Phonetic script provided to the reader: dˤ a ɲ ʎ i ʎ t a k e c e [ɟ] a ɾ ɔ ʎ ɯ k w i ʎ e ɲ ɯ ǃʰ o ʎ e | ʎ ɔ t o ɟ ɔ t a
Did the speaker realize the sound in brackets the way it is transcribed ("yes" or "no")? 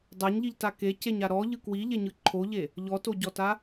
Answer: no